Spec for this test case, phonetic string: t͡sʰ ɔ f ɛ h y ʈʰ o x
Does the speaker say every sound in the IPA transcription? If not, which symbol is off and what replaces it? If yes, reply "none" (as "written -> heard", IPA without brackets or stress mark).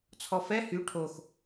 none